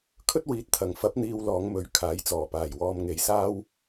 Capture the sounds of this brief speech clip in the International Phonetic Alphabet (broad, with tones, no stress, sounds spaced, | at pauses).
kʰ ɵ˥ t̚ w iː˨ t̚ t̪ʰ ɐ˨˩ ŋ f ɐ˨˥ p̚ n̪ iː˧ w l ɔː˨˧ ŋ m ɵ˨˥ ɥ kʰ aː˨˥ j t͡s ɔː˨˩ p aː˨˩ j w ɔː˧ m ŋ e˨ j s aː˥ w